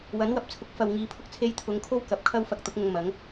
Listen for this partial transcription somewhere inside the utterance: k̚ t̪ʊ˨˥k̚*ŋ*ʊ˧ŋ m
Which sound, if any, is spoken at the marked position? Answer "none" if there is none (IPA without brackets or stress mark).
ŋ